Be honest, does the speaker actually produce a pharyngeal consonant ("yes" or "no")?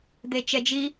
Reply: no